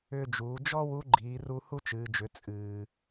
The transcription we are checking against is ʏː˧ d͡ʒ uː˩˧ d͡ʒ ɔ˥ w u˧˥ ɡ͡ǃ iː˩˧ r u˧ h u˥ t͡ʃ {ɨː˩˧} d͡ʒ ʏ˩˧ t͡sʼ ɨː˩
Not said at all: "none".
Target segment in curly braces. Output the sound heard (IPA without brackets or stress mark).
ɨː˩˧